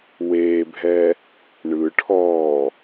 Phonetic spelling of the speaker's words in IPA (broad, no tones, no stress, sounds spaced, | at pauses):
w eː bʱ ɛ | ɳ ɯ ʈʰ ɔː